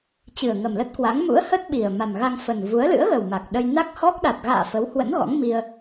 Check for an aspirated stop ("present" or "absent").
absent